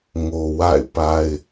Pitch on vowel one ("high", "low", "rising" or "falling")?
low